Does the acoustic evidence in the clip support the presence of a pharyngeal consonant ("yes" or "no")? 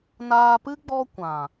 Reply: no